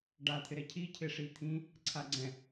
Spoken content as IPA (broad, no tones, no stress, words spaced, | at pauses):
ɖat̪ʰɪ ɾɛcʰi cʰɪʂit̪ʰĩ | ǀʰaɡ͡ǀɛ̃